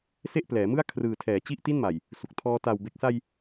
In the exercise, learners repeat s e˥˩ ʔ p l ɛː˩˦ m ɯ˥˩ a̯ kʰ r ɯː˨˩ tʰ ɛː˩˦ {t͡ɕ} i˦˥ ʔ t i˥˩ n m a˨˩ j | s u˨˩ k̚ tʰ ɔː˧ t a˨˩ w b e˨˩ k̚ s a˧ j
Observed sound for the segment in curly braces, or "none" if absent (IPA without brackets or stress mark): t͡ɕ